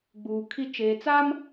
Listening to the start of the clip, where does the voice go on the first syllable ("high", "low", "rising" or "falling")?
low